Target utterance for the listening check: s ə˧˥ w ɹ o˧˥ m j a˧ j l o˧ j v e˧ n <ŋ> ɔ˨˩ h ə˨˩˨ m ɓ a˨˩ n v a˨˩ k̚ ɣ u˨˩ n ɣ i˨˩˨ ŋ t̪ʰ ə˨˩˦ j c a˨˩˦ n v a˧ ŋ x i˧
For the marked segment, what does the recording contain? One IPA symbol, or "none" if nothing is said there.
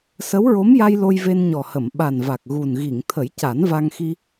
ɲ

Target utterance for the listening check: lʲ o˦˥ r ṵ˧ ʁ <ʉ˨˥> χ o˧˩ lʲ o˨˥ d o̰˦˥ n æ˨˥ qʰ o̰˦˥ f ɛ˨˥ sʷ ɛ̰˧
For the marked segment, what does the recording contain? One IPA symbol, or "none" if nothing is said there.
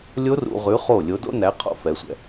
ʉ˨˥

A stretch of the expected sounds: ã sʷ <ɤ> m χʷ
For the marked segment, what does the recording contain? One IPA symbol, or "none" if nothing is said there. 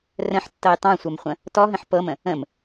ɤ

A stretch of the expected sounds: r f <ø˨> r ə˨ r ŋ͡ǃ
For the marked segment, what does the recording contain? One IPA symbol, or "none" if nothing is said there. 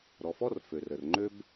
ø˨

